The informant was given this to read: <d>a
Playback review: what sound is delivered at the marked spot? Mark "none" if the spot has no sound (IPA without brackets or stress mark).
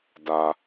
d